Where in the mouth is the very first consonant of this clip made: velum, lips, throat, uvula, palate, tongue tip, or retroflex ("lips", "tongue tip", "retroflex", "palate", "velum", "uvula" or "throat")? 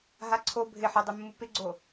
throat